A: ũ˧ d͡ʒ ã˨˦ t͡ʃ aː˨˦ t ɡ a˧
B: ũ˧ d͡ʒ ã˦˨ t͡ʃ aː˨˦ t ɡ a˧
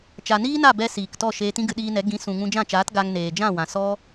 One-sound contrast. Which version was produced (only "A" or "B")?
B